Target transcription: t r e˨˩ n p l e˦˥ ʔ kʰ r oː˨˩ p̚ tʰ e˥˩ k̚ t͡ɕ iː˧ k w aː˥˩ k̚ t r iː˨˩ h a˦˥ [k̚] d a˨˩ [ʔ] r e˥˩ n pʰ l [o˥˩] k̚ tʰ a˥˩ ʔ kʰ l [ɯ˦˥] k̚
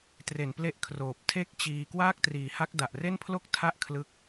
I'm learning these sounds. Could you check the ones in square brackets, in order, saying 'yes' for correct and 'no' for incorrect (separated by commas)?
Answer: yes, yes, yes, yes